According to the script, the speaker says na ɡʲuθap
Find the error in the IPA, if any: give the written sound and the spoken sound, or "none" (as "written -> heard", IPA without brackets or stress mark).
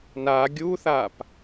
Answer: none